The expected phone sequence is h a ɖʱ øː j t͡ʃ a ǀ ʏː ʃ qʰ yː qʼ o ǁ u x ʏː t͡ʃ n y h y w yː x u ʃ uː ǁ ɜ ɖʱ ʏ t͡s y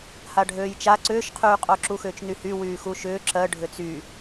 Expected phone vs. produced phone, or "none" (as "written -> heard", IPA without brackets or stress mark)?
uː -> ʏː